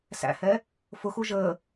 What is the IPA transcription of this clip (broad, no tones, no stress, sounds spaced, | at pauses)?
s æ̰ h ɛ | f ʊ x u ʒ əː